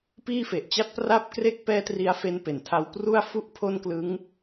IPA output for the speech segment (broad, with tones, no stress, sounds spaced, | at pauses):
p iː˥˩ f e˨˩ ʔ t͡ɕ a˥˩ t̚ p r a˦˥ p̚ k r e˦˥ k̚ p ɛː˦˥ t r i˦˥ a̯ f e˦˥ n p e˨˩ n tʰ a˦˥ w p r u˥˩ a̯ f u˥˩ ʔ pʰ o˥˩ n k l ɯ˦˥ ŋ